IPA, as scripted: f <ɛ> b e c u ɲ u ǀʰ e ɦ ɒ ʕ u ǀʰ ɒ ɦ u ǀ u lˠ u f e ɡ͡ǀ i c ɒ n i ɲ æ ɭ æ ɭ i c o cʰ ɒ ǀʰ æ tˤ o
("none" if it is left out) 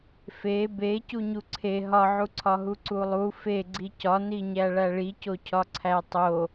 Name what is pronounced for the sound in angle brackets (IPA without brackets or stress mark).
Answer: e